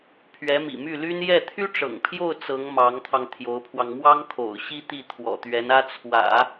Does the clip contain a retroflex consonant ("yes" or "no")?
yes